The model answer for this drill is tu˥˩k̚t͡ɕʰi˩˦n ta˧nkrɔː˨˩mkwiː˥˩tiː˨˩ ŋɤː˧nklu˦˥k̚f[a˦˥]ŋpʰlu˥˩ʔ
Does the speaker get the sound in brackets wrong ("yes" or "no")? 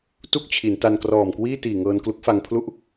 yes